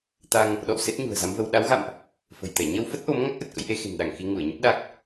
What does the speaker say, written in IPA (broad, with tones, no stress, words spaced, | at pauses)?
t̪a˧ŋ | ɗɔ̰˧˨w se˦˥t̚ɲṳ˨˩ə̯za˨˦mvə˧w ɗa˨˦wɣa̰˧˨mʔ | fə̤˨˩jt̪ɛ˧˩ ɲə˧wfə˦˥t̚ʔo˨˦m ŋa˦˥k̚ʔə˨˩t̚kə̰˧˥jʔe˨˦ xe̤˨˩nɗa˧˩ŋ xi˧ŋu˧˩ə̯ɲə˦˥p̚ ɗa˦˥k̚